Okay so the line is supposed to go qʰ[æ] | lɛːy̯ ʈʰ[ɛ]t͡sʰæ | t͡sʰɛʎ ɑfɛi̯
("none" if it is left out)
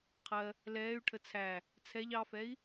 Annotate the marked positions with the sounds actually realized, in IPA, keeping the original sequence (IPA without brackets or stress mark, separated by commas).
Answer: ɜ, ə